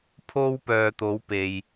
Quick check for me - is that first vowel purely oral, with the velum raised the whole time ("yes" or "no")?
yes